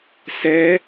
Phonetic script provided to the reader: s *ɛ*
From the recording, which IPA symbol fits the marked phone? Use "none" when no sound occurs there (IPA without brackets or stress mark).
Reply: ɛ